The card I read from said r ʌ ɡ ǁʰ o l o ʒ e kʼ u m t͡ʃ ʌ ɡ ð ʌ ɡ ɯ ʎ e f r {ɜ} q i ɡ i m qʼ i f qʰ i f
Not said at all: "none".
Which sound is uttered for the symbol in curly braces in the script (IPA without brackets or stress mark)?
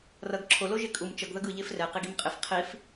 ɛ